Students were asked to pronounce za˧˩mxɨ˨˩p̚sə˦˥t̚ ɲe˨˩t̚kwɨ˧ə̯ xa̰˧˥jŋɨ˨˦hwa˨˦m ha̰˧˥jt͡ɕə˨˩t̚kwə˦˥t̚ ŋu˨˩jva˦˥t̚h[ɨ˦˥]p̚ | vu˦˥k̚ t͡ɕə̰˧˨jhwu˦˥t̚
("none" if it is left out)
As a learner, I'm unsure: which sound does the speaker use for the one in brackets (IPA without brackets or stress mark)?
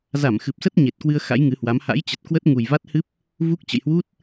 ɨ˦˥